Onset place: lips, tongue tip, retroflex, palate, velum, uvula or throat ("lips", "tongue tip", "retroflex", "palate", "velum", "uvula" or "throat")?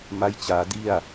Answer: lips